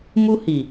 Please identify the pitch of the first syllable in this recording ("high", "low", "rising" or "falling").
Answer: high